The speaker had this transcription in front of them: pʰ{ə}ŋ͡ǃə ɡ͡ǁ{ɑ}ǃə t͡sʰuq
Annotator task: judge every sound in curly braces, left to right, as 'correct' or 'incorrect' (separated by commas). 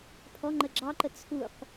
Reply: incorrect, correct